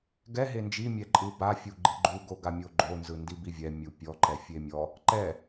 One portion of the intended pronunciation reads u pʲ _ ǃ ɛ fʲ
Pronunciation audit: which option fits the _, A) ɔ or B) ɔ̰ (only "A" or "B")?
A